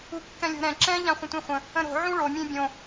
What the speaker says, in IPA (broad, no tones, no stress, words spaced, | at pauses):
ukːɛ̃lʲo̤ɾɛ̃ ǁɛ̃ ʎãχʷə̃tʷẽχʷə̃ | ə̃ɾo̤ ʕũɭo mʲẽbʲõ